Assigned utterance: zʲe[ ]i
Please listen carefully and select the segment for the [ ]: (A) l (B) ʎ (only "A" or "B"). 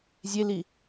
A